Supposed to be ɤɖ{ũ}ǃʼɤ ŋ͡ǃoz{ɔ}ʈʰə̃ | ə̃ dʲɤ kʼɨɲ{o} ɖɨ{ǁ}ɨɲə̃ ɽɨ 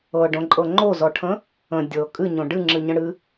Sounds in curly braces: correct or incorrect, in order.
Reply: incorrect: õ, correct, incorrect: õ, incorrect: ŋ͡ǁ

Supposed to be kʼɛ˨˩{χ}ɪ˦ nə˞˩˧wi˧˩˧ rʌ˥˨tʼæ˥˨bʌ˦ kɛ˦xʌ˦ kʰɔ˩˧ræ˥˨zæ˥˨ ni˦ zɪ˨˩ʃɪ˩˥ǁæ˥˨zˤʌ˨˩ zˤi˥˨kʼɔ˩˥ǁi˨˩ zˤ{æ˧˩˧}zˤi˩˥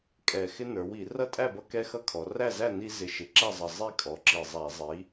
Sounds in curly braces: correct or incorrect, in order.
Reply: incorrect: x, correct

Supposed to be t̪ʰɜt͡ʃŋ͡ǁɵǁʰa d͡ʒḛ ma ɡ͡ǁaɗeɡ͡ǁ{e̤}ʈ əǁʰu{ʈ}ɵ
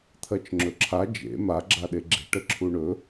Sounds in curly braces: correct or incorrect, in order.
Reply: correct, incorrect: ɳ

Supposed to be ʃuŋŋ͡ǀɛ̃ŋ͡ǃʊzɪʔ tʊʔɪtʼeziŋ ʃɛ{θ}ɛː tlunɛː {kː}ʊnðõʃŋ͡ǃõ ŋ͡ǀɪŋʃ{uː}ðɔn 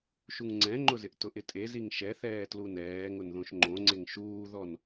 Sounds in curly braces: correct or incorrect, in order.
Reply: correct, incorrect: ŋ, correct

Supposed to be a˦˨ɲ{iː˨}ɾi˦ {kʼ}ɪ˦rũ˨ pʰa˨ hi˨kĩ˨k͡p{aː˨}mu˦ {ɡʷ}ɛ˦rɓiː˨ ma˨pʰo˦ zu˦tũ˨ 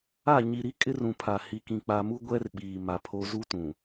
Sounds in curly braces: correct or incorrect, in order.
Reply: incorrect: i˨, correct, incorrect: a˨, correct

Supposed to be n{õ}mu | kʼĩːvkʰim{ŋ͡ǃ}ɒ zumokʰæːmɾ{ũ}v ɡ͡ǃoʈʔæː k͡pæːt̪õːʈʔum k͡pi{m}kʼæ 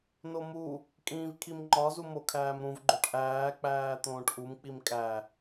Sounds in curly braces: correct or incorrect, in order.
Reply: incorrect: o, correct, correct, correct

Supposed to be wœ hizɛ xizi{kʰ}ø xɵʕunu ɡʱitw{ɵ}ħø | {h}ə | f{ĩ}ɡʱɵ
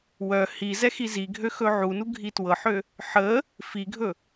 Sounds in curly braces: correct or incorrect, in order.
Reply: incorrect: ɡʱ, incorrect: ɤ, incorrect: ħ, incorrect: i

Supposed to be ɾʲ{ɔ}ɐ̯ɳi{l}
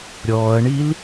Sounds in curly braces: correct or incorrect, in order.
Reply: incorrect: ɔː, correct

